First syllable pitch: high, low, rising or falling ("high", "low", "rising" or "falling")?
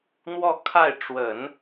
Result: falling